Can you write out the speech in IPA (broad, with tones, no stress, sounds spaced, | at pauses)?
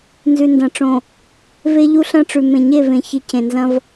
n z ʉ˨ n d ɐ̃˨ ʈ͡ʂ õ˨ | v e˦ ʎ u˦ ɬ ɐ̃˦ ʈ͡ʂ ʉ˨ m ẽ˨ ɲ e˦˨ v ẽ˨ ç i˨ cʰ ẽ˨ n z ɐ̃˦ v